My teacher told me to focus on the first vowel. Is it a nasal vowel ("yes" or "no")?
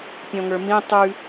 yes